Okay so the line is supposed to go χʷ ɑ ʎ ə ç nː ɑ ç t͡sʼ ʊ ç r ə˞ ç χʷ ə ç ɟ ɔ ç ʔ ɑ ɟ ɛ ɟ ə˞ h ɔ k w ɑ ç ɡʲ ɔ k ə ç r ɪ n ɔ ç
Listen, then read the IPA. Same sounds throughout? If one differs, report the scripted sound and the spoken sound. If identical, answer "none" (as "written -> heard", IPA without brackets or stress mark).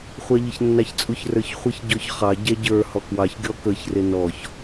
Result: ʔ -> χ